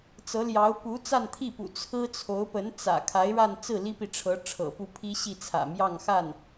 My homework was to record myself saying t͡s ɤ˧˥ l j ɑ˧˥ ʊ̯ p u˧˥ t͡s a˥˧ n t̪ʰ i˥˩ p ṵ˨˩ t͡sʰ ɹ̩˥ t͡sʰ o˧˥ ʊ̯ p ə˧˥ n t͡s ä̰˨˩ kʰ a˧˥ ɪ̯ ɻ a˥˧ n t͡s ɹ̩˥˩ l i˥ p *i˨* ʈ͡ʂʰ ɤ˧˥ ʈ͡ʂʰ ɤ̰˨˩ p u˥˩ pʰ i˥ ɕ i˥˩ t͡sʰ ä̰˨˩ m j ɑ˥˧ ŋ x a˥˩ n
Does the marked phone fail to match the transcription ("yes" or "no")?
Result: no